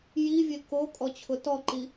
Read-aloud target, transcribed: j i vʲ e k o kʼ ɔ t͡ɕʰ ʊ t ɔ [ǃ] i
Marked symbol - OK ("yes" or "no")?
yes